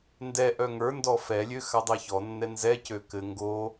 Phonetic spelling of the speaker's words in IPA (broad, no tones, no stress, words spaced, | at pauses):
ndɛʔœ ŋə˞ndɔ fɛlʲø xadˤɛçɔnːɛ nzɛcø kɘ ŋɡo